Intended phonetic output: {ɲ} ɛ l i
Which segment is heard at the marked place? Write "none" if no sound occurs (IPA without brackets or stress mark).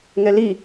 ŋ